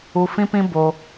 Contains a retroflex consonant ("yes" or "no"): no